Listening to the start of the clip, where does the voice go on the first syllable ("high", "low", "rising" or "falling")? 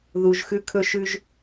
low